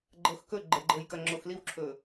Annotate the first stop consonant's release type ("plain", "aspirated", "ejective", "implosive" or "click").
click